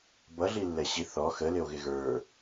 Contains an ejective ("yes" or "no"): no